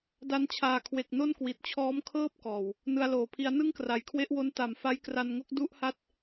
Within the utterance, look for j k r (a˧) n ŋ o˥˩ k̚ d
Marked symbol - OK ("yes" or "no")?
yes